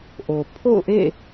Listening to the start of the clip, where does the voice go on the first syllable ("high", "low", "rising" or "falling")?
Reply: low